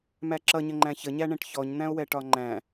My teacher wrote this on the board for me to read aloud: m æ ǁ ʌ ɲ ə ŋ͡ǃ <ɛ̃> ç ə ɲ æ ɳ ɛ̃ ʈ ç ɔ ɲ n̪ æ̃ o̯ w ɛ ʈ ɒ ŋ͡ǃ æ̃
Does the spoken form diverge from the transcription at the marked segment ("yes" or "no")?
yes